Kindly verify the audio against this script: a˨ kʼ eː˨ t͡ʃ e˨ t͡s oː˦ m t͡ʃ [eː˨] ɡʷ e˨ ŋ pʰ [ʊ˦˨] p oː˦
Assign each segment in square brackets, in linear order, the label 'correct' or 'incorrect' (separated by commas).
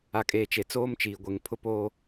incorrect, incorrect